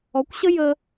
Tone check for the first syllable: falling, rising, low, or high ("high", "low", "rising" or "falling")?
rising